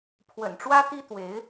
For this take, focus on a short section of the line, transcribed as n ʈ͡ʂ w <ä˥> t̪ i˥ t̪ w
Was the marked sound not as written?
no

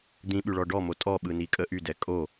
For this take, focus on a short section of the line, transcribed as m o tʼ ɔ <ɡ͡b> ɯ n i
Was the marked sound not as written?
yes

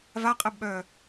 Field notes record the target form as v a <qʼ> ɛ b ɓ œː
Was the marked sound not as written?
no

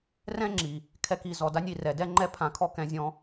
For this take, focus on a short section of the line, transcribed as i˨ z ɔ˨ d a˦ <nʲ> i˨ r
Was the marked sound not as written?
no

